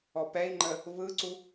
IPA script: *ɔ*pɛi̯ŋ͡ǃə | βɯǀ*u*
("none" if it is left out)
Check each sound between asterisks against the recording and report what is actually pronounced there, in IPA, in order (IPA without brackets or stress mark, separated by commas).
ɔ, u